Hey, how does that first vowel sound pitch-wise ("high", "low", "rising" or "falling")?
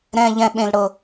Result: high